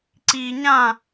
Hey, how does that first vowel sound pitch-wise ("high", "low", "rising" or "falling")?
low